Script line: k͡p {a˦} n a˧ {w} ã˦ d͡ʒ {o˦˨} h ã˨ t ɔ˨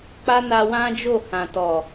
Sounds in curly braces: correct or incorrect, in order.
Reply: correct, correct, correct

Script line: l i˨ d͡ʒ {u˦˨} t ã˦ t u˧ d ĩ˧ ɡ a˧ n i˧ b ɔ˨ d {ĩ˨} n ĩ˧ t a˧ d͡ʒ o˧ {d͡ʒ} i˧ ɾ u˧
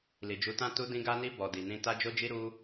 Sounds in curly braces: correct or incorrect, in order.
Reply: incorrect: u˨˦, incorrect: i˨, correct

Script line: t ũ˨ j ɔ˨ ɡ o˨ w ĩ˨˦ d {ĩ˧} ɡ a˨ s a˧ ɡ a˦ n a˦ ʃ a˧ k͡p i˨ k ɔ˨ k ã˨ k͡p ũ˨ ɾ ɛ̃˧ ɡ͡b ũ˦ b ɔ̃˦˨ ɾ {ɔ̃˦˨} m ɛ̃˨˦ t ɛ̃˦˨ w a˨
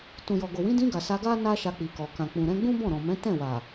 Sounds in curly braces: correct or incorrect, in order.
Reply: correct, incorrect: ɔ̃˨

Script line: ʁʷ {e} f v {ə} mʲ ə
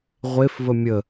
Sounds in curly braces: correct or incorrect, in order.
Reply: correct, correct

